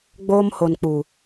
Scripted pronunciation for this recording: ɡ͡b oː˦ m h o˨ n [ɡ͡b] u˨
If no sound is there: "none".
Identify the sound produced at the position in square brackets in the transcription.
k͡p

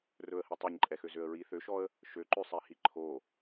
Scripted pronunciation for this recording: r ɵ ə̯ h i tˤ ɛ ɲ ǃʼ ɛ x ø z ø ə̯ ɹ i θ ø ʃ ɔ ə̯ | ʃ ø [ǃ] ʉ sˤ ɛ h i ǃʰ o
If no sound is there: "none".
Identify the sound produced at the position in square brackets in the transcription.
ǃ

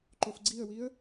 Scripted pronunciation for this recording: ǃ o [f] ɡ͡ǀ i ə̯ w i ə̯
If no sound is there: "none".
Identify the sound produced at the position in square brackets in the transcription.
f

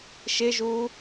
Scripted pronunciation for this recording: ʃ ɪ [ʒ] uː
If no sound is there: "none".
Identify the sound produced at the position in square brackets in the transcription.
ʒ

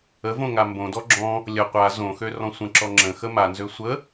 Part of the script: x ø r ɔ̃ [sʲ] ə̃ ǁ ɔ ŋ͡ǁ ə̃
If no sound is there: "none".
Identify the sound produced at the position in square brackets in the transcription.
sʷ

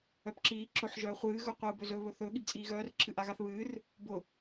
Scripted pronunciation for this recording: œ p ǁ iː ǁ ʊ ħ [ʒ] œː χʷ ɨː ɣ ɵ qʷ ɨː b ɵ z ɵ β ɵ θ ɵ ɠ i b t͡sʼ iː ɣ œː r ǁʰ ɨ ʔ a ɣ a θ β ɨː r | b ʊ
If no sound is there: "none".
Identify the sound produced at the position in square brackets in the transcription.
ʒ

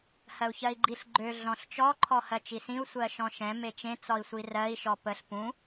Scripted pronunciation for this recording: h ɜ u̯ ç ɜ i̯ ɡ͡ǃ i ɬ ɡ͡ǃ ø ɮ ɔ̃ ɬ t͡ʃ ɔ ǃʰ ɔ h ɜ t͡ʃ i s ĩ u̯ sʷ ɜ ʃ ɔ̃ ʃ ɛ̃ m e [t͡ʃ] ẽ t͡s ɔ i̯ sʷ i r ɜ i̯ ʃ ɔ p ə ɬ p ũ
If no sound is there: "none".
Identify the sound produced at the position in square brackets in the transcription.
t͡ʃ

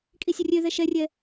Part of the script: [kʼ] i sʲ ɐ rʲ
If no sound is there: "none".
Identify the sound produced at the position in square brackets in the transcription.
kʼ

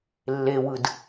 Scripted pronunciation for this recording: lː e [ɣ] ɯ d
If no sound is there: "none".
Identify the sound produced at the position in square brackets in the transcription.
w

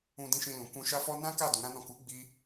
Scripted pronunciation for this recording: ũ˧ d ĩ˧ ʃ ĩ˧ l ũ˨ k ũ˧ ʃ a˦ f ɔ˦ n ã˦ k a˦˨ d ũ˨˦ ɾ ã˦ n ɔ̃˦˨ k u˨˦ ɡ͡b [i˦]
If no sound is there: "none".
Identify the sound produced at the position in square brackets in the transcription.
i˦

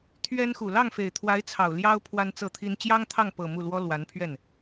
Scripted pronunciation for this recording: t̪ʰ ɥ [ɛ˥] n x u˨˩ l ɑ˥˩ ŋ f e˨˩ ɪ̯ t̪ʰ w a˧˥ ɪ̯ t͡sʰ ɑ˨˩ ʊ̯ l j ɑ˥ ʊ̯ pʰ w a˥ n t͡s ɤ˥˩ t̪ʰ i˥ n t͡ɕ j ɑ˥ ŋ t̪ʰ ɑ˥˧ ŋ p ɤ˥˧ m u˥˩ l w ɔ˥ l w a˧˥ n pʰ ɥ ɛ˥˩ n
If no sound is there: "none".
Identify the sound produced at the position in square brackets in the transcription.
ɛ˥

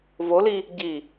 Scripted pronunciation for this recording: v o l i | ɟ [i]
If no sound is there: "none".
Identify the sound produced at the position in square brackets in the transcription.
i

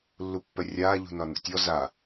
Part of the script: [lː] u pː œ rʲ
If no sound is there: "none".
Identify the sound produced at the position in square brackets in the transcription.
lː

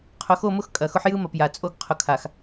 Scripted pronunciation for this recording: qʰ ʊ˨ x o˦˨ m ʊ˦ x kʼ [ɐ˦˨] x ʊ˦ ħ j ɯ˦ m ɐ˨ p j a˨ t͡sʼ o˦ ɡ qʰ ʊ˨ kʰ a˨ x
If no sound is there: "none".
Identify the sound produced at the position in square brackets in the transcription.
ɐ˨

